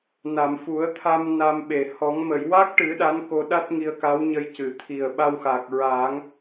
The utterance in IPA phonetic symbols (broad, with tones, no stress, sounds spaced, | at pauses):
n a˨˩˨ m f u˨˩˦ ə̯ t̪ʰ a˧ m n a˧ m ɓ e˨˩ h ɔ˨˩˦ ŋ m ə˨˩˨ j w a˦˥ k̚ ʈ ɨ˨˩˦ ɗ a˧˥ n k o˧ ɗ a˦˥ t̚ ŋ i˧ ə̯ k a˧˥ w ɲ ə˧ j c ɨ˨˩˨ t̪ʰ i˨˩ ə̯ ɓ a˧ w x a˨˩ k̚ ɹ a˨˩˦ ŋ